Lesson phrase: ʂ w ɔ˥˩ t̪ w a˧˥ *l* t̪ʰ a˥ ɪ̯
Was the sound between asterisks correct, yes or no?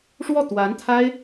no